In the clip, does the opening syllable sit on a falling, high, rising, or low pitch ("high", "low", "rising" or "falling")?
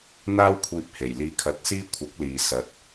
high